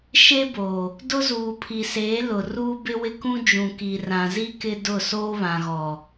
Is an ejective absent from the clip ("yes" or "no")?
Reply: yes